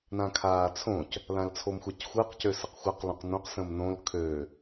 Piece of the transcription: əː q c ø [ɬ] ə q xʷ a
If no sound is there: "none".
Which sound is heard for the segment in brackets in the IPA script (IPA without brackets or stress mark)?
s